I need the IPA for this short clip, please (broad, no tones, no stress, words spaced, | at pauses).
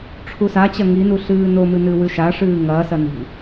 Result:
ʈ͡ʂʰusat͡ɕɐ ŋinu ɬɨːnomɨ nɨwʉʃa ʂɨːŋɐːsɐ ni̤